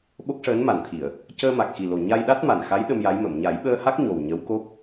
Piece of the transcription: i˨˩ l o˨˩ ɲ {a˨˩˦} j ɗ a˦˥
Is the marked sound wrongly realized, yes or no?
yes